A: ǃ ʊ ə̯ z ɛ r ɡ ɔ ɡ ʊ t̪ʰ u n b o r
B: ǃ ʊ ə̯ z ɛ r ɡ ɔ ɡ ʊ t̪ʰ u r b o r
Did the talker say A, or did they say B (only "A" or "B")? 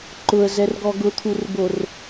B